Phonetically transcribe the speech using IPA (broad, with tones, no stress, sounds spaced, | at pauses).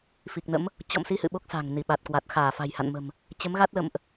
f i˨˩ k̚ n ə̰˧˥ m | t͡ɕ ɔ̰˧˨ m s i˧ h ɨ̰˧˨ ɓ o˦˥ k̚ s a̤˨˩ ŋ n i˧˩ ɓ a˨˩ t̚ k w a˨˩ t̚ x aː˧˩ f a̤˨˩ j h a̰˧˨ n m ə̤˨˩ m | t͡ɕ ə˨˦ m ɣ a˦˥ t̚ l ə̰˧˨ m ʔ